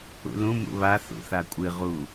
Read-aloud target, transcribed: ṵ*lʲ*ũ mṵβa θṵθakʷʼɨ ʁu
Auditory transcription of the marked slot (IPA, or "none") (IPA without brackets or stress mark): l